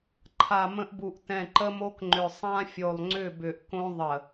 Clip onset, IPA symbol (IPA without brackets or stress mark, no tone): ǃʰ